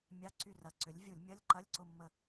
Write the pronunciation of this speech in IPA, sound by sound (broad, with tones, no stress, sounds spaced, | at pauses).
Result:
mʲ a˧˥˧ ǀ y˦˨ r ɐ˨˥ ǀ ʏ˨˥ lʲ vʲ u˧˩˧ lʲ mʲ ɐ˧˥˧ lʲ ǃ ɐ˧˥˧ lʲ ǀ ʊ˦˨ mː ə˦˨